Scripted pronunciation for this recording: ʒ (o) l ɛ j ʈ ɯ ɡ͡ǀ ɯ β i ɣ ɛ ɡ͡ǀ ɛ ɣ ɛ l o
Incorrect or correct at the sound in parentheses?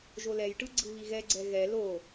correct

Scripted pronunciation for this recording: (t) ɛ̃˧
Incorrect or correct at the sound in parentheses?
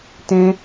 correct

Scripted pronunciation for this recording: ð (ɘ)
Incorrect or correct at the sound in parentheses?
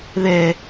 incorrect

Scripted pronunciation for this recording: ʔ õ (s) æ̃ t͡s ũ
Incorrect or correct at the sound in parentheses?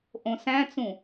correct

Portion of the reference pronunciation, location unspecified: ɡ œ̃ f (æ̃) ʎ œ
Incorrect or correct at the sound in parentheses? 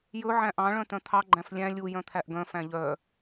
correct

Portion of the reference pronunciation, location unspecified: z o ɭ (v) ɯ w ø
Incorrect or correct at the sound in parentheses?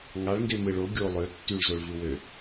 correct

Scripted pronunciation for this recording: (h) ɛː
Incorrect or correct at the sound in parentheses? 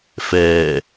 incorrect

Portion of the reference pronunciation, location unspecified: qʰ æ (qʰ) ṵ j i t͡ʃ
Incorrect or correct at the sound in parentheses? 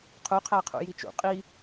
correct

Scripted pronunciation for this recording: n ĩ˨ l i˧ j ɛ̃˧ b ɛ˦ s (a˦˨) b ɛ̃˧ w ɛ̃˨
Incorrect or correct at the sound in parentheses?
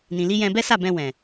correct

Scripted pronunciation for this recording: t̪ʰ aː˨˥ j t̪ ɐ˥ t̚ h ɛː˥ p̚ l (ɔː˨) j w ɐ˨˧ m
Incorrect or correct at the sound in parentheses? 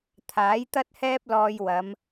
incorrect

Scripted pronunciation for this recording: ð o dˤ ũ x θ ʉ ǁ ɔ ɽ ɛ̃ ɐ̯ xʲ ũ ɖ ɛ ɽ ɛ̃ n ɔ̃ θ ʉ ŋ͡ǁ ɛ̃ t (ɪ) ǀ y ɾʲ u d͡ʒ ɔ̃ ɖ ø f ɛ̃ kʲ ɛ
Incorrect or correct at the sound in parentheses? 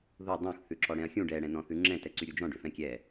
incorrect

